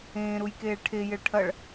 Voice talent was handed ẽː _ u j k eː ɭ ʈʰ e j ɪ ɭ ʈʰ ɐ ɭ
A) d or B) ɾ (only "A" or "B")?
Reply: B